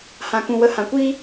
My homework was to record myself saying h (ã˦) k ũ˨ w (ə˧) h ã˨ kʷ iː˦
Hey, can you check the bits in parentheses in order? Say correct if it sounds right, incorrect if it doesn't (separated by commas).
incorrect, incorrect